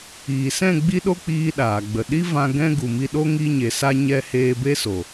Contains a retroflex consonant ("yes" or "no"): no